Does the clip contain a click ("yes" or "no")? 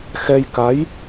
no